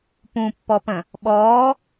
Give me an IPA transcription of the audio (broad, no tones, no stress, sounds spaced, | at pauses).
p ũ pː ɔ p ə̃ | ɓ ɔː